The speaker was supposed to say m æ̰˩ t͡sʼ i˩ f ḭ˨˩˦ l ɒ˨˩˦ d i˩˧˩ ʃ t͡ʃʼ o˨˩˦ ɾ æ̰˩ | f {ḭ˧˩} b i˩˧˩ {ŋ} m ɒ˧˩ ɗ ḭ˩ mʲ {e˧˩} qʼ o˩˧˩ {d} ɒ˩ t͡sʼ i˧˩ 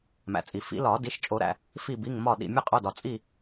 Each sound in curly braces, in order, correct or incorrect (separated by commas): incorrect, correct, correct, correct